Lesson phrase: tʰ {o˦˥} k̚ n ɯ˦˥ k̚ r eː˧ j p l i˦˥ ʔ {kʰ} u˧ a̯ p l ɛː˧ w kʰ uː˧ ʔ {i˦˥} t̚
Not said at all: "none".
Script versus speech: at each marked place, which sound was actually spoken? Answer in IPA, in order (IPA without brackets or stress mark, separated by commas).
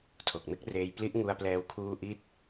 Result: o˨˩, ŋ, i˦˥